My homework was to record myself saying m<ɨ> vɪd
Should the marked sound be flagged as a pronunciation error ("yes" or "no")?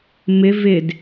yes